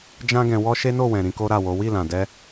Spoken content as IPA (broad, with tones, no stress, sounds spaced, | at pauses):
d͡ʒ ã˦ ɡ ɛ̃˧ w ɔ˦ ʃ e˦ n o˦˨ w ɛ̃˨ ɾ ĩ˧ k o˦ ɾ a˦˨ w o˨˦ w i˦˨ l ã˨ d ɛ˧